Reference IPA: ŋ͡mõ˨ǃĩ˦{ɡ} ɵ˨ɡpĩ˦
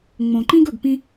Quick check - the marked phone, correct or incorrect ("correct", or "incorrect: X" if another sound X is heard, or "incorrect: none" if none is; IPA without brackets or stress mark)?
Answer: correct